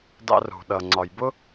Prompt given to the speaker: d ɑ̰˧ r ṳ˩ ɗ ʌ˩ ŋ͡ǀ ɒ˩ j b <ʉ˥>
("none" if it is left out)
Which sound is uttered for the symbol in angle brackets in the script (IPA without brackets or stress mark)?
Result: ʊ˥